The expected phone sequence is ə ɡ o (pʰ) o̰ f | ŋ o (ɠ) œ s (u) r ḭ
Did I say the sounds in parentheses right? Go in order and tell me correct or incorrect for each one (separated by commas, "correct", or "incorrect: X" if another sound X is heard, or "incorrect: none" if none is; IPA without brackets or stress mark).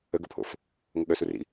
correct, correct, correct